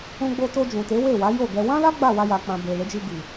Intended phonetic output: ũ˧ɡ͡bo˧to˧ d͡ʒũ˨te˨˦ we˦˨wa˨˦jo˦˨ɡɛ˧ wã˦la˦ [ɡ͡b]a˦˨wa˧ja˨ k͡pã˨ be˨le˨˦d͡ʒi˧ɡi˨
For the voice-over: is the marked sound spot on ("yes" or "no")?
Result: yes